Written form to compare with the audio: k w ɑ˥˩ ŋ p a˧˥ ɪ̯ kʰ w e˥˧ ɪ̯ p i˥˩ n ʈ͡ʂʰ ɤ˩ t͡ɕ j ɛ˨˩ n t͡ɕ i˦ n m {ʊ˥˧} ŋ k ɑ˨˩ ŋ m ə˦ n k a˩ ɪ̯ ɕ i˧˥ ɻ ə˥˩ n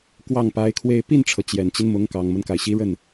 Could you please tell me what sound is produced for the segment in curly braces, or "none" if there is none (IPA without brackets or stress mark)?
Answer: ʊ˧˥